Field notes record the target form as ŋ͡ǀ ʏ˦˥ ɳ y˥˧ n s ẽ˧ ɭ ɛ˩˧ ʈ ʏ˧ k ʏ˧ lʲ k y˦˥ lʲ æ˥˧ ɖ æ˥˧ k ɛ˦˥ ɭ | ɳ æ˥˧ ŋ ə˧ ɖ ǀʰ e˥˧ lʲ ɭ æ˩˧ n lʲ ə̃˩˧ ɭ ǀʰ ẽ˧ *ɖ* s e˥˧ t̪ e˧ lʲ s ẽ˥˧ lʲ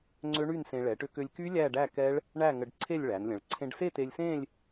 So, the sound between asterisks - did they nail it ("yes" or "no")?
yes